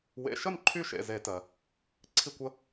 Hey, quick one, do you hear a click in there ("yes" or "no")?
yes